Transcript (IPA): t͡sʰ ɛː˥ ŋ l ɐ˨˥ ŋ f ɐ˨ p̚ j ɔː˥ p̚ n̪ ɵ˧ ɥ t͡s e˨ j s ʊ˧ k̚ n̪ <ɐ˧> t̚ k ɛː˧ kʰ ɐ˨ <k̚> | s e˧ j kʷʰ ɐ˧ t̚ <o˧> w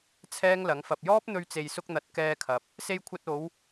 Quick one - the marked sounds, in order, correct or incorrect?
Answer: incorrect, incorrect, incorrect

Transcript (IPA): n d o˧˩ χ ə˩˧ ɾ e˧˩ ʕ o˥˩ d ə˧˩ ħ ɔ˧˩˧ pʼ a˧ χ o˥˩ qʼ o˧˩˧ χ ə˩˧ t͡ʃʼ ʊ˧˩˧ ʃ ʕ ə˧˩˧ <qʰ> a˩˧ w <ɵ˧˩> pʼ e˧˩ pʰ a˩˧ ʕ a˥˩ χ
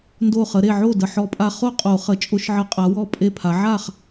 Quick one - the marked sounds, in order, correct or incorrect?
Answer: incorrect, incorrect

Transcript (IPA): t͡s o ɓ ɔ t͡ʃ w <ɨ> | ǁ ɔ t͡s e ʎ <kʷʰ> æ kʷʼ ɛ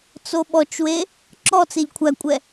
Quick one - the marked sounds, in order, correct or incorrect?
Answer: incorrect, correct

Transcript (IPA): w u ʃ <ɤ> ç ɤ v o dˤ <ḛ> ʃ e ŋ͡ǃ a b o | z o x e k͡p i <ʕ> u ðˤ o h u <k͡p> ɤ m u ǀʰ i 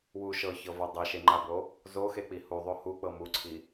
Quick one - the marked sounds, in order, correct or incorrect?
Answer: correct, incorrect, incorrect, correct

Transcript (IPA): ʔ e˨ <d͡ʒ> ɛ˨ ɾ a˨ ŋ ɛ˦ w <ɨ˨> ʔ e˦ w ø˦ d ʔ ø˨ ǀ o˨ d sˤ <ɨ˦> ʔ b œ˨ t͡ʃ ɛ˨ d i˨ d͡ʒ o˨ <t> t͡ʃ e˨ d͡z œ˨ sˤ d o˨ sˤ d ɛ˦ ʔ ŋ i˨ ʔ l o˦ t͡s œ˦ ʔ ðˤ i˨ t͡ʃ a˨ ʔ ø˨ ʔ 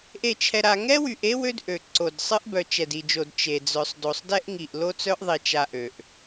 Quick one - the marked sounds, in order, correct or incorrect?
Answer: incorrect, incorrect, correct, incorrect

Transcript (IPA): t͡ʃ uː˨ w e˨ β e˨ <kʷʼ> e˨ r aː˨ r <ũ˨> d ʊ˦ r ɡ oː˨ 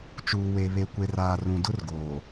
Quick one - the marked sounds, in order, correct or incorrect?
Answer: incorrect, correct

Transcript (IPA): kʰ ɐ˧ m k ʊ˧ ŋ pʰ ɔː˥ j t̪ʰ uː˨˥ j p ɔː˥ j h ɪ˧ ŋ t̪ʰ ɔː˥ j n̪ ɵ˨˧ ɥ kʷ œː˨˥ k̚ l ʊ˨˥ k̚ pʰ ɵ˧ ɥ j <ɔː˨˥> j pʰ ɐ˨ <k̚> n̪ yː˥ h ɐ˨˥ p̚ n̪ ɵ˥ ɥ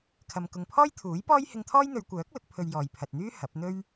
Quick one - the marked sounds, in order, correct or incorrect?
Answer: incorrect, incorrect

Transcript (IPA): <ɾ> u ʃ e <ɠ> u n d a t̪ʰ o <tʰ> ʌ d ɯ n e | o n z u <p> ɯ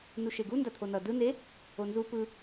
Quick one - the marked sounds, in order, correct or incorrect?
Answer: incorrect, incorrect, incorrect, correct

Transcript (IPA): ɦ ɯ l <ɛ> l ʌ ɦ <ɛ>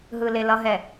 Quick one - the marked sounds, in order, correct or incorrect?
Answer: incorrect, correct

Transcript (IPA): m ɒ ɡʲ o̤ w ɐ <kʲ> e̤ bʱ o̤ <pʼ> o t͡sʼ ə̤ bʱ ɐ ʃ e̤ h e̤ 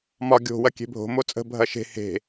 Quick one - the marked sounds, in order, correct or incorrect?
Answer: correct, incorrect

